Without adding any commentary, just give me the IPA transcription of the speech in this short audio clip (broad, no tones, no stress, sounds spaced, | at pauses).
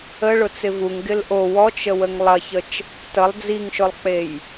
ə ɭ ʊ t͡s ɪ v u ŋ ɡ ɪ l ʔ o w ɔ t͡ʃ ə w ə ŋ lˠ ɐ ç ə t͡ʃ | t ə lˠ d͡z i ŋ ʃ ʊ lˠ k͡p e j